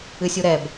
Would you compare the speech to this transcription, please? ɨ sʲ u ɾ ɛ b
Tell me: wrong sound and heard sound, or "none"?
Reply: none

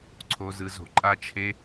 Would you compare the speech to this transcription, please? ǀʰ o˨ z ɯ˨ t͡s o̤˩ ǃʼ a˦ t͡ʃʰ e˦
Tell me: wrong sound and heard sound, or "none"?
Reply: t͡s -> z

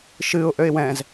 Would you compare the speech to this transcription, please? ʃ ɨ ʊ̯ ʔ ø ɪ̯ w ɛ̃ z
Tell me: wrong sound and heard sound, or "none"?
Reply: none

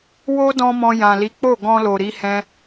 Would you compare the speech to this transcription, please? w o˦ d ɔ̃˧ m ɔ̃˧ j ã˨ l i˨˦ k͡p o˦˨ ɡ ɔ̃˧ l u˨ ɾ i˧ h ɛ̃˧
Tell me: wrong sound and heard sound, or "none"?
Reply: u˨ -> o˨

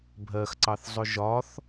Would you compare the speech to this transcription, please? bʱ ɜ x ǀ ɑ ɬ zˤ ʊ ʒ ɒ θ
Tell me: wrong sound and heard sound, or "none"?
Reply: ɬ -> θ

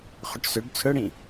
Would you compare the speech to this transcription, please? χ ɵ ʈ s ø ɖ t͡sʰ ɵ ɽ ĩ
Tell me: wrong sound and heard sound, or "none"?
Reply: none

